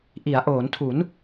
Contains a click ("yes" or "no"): no